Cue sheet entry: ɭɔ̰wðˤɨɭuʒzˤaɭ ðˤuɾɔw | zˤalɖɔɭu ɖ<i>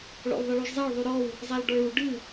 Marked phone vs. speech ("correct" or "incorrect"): incorrect